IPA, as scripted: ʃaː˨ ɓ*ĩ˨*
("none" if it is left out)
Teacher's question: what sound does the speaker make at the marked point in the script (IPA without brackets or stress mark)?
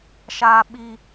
i˨